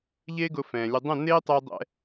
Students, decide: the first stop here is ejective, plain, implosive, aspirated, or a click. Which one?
plain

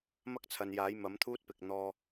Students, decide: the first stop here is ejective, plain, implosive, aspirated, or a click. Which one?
plain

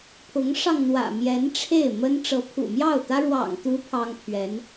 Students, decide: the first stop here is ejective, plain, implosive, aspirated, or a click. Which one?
aspirated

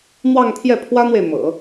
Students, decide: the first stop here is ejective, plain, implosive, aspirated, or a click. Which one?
aspirated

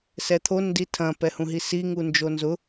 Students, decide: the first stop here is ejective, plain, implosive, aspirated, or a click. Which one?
aspirated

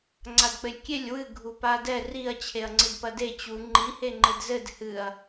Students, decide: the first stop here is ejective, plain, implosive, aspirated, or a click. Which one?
click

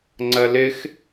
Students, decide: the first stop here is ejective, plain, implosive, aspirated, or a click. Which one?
click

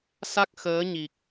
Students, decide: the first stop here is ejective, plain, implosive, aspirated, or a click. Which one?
plain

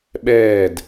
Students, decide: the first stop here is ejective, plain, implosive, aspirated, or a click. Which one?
implosive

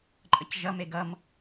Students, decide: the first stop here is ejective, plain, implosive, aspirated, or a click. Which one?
click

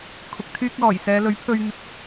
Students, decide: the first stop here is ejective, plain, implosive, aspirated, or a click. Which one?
aspirated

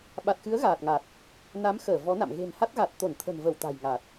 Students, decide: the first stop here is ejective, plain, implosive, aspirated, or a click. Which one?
implosive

